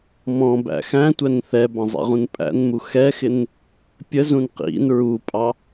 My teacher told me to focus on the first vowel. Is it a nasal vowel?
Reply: yes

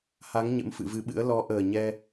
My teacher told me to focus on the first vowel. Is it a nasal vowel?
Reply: no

